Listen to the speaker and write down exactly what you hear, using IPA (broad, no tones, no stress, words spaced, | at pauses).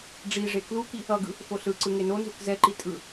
ɖ͡ʐiʐe kluki | ʌɡɯ | foɬɯǀɯ ŋenonzuk zɛǃi tʼɯ